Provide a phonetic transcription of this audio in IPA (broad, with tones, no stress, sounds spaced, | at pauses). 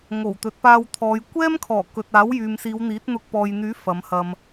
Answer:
ŋ o˨˩ w t̪ ɵ˨˥ t̚ p aː˧ w t̪ʰ ɔː˨˧ j kʷ ɛː˥ m kʰ ɔː˨˩ k ɵ˨ t̚ aː˨˥ w j yː˨ m s iː˨˧ w n̪ iː˨˥ t̚ n̪ ʊ˧ k̚ p ɔː˨ j n̪ yː˨˥ f ɐ˨˧ m h ɐ˧ m